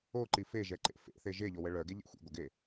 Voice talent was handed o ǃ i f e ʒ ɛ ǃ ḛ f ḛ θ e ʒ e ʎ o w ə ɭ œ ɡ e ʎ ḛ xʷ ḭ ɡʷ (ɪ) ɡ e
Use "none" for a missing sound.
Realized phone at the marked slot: ɪ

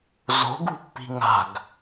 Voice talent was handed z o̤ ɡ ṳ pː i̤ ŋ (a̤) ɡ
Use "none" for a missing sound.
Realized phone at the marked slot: a̤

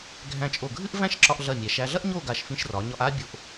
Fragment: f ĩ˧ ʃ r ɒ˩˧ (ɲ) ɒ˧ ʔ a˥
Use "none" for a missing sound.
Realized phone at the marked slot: ɲ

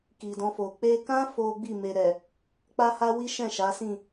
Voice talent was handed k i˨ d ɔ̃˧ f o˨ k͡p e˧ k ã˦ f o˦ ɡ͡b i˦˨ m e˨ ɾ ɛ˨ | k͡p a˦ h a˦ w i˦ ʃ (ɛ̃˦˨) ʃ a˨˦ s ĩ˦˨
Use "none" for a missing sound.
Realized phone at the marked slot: ɛ̃˦˨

